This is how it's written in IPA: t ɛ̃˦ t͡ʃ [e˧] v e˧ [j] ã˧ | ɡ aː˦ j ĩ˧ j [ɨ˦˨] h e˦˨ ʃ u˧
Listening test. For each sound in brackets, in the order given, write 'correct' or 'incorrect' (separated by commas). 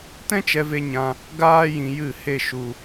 incorrect, incorrect, correct